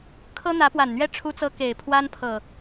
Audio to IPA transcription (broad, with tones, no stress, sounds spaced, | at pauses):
kʰ ɤ˦ n̪ ä˨˦ p w a˨˩ n n̪ ɥ ɛ˦ ʈ͡ʂʰ u˦ t͡s ɤ˦ k e˨˩ ɪ̯ pʰ w a˦ n pʰ ɤ˨˩